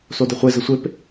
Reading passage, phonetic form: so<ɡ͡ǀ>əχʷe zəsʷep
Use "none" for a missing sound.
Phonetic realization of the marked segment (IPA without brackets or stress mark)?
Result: d